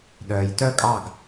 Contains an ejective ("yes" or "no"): yes